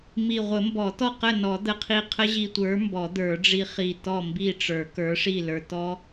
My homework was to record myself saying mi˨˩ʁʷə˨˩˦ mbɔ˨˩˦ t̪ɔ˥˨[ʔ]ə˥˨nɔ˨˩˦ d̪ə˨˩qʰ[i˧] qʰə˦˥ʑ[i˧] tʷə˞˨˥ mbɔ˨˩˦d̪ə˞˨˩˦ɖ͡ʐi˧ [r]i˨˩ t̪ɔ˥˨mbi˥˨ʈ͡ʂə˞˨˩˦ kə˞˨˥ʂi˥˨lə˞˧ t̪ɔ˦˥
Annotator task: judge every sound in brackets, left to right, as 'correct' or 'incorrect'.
incorrect, correct, correct, incorrect

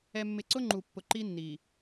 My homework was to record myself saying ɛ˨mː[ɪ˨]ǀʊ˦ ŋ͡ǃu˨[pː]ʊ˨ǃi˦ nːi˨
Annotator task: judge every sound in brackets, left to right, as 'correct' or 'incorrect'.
correct, correct

